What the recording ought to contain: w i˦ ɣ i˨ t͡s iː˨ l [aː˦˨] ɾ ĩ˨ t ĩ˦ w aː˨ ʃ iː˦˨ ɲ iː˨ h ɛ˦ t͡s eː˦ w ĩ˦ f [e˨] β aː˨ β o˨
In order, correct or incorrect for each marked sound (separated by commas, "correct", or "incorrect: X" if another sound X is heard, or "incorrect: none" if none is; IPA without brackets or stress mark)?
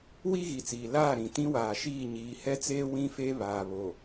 correct, incorrect: e˦